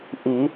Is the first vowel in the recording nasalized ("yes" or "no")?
no